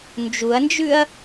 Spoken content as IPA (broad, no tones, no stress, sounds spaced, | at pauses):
n d͡ʒ u ɐ̯ n d͡ʒ ʉ ɐ̯